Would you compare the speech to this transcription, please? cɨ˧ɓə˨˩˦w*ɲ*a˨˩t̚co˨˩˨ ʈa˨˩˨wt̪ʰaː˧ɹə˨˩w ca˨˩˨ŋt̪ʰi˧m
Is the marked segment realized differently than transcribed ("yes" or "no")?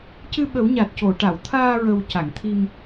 no